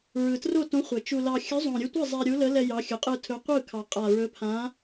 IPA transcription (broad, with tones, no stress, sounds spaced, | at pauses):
ɹ ɯ˨˩ t r o˥˩ t õ˨˥ χʷ ɛ˨˩ t͡ʃ u˧ l ɑ˧ xʲ ɵ˨˥ zˤ õ˨˩ ɾʲ ɯ˧ tʷ e˥˩ zˤ ɛ˧ ɾʲ u˨˥ l ə˨˥ l ɛ˧ j ɑ˨˥ xʲ ɵ˨˩ qʼ ɯ˧ tʰ ɵ˨˥ qʷ ɯ˥˩ kʰ ɑ˨˩ qʼ a˨˩ ɹ ɵ˨˥ pʰ ã˨˥